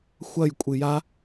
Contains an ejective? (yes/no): yes